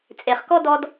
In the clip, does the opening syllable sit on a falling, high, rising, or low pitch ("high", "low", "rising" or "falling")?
low